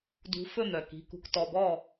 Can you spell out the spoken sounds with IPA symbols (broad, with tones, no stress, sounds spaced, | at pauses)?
d ṳ˨˦ f ɵ˥˩ n̪ œ˩ k i̤˩˧˩ k ṳ˨˦ k t ɔ˩˧˩ b ɔ˥˩